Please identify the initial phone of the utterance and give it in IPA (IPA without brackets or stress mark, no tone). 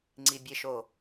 ŋ͡ǀ